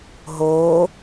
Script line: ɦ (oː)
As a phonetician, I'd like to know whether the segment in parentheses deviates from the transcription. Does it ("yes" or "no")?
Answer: no